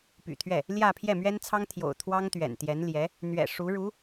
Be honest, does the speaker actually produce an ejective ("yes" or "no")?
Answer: no